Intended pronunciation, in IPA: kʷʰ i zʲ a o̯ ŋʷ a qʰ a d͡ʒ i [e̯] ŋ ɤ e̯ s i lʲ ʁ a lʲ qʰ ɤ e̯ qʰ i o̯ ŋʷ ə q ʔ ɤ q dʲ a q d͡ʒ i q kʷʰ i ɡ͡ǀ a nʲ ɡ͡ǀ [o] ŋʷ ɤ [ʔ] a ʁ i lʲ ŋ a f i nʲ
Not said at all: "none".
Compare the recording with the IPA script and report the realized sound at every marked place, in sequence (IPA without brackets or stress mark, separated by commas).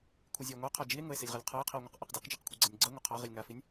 e̯, ɤ, qʰ